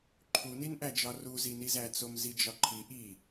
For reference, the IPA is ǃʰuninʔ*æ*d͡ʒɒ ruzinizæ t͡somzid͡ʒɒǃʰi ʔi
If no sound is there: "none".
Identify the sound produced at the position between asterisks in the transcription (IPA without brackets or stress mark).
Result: æ